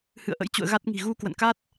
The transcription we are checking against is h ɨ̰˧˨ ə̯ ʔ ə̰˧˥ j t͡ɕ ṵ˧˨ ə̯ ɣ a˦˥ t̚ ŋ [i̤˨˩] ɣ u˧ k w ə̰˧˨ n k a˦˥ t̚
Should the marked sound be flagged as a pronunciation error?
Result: no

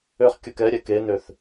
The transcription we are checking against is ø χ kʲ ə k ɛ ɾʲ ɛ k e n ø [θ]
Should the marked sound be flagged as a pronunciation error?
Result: no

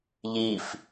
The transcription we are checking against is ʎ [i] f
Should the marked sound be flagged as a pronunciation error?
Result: no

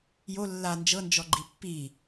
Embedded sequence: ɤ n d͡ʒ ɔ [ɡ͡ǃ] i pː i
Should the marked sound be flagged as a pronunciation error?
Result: no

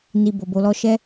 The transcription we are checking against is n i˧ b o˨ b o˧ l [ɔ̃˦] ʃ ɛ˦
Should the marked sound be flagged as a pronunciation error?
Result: yes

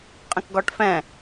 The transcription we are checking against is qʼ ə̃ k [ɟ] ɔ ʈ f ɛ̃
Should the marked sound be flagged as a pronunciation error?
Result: yes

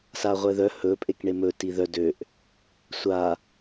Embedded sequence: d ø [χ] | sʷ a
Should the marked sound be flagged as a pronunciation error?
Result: yes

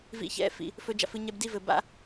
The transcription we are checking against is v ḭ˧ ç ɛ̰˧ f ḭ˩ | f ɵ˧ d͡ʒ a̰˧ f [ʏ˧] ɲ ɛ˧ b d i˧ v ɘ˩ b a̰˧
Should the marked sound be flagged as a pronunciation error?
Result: yes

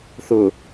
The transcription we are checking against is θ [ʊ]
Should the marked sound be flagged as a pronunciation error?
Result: no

